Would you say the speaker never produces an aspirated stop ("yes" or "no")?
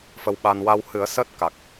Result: yes